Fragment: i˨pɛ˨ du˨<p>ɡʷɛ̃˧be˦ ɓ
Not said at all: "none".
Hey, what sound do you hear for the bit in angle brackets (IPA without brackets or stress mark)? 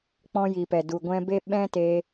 none